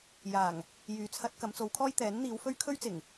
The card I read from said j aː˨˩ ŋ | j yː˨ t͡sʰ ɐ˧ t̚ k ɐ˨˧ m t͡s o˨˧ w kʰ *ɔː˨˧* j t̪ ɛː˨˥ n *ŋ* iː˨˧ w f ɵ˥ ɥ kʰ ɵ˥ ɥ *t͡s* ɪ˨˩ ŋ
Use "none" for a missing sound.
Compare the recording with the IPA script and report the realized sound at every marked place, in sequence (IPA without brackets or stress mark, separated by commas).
ɔː˥, n̪, t͡s